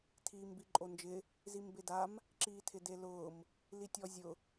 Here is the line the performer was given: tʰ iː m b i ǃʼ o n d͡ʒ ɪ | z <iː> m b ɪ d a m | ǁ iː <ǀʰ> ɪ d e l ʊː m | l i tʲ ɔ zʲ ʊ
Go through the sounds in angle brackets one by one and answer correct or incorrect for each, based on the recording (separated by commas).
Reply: incorrect, incorrect